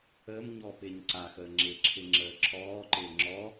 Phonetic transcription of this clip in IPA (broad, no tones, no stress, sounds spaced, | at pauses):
əː m ɲ ɔː p ɪː ɲ ǀ a x əː ŋ͡ǁ ɪ ǁʰ ɪ ŋ͡ǁ əː ǁʰ ɔː ǃ ɪː ŋ͡ǁ ɔ